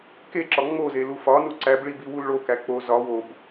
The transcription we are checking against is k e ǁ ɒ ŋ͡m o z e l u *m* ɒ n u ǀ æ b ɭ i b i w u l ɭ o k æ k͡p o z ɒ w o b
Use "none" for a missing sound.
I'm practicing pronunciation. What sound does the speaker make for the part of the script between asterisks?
f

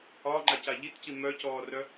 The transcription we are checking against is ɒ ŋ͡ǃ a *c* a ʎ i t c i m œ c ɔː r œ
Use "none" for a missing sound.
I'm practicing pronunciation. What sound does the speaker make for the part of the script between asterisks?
c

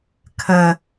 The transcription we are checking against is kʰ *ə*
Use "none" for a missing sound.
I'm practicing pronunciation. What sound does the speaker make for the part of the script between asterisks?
ə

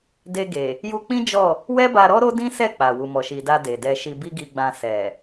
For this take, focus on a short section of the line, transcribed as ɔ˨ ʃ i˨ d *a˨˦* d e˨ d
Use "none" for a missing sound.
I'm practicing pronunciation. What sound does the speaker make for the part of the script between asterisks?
a˧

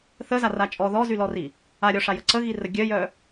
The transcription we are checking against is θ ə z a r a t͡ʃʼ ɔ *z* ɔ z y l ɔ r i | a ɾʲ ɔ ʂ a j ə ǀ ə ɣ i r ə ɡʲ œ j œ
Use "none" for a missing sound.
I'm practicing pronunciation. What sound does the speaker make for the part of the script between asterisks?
ð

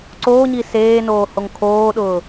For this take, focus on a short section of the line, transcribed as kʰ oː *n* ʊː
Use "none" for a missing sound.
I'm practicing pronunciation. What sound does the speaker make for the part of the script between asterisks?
ɗ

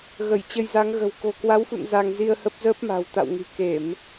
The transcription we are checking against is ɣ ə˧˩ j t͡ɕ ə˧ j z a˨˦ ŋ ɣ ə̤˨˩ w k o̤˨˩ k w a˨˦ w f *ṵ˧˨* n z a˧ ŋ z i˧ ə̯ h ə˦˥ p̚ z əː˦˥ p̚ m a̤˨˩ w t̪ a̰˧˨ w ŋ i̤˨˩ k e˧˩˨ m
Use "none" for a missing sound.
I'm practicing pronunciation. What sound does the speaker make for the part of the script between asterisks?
ṵ˧˨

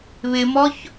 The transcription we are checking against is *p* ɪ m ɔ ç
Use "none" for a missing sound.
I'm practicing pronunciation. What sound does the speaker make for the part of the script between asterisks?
β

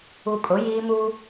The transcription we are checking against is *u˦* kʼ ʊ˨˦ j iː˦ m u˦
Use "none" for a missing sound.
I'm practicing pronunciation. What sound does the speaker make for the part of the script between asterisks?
u˨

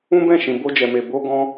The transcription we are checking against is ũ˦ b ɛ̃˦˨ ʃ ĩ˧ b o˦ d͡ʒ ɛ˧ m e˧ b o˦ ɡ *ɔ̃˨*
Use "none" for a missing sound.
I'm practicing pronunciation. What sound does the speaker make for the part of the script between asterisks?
ɔ̃˦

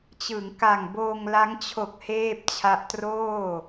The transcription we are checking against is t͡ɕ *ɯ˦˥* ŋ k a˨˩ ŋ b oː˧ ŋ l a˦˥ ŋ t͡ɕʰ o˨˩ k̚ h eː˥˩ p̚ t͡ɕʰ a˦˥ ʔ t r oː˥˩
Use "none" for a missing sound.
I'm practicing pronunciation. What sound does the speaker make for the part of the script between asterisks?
ɯ˩˦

